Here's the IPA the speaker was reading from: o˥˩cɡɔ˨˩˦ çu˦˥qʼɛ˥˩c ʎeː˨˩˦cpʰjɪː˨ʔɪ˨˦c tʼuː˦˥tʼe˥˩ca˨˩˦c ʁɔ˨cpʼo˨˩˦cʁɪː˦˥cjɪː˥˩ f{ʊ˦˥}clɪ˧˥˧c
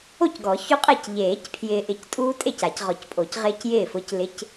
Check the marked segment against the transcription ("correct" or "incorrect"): correct